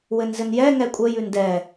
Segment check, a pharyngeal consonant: absent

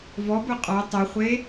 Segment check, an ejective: present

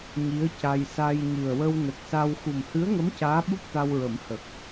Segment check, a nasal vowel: absent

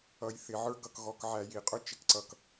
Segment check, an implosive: absent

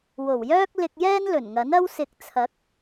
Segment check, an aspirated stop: present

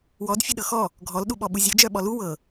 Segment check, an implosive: present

